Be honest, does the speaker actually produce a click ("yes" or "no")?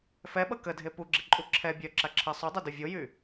yes